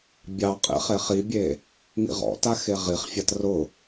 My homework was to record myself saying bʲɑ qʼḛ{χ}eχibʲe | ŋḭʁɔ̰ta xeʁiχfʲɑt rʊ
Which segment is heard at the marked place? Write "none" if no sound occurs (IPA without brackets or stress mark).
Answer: χ